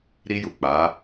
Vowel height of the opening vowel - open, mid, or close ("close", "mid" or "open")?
close